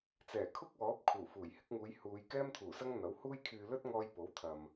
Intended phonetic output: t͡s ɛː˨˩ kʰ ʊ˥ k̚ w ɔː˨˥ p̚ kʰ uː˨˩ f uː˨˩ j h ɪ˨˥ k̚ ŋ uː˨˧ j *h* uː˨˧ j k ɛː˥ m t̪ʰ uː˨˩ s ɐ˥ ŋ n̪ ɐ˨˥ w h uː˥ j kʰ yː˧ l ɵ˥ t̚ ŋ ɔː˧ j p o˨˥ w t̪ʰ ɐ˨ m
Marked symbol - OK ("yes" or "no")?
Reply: yes